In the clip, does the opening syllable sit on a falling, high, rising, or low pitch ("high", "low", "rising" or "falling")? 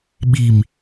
low